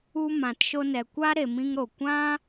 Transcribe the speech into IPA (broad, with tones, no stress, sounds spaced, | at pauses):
u˧ m ã˨ t ʃ o˧ n ɛ˨ kʷ a˦ ɾ e˨ m ĩ˦ ŋ ɾ o˨ kʷ ã˦